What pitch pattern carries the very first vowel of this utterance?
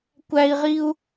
high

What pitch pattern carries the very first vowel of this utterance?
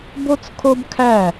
high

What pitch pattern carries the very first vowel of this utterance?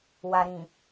low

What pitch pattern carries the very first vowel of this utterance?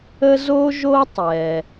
high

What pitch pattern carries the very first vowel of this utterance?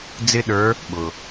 high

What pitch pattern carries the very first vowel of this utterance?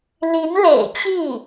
rising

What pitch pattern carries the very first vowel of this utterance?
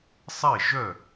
falling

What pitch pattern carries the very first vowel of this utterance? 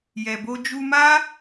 low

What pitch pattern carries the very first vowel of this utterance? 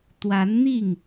rising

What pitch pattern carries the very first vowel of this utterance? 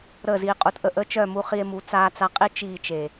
falling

